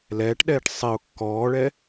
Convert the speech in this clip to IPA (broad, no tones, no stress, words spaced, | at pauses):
lɛːʈɗɛːʈ sˤiʊ̯ kːɔːɭɛ